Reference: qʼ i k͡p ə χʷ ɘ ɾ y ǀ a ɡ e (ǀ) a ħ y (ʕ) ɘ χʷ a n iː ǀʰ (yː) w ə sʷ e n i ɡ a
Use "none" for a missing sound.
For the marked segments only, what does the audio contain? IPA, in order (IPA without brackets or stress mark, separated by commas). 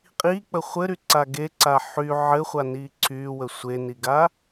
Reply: ǀ, ʕ, yː